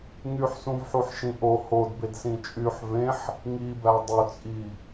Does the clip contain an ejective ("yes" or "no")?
yes